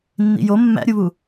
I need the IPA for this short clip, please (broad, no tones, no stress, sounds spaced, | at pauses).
nː ḭ j o mː æ̰ ɾʲ u β u